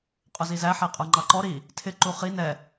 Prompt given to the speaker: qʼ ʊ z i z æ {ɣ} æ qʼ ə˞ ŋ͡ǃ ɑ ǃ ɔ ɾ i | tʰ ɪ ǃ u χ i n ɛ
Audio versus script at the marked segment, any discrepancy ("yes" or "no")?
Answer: yes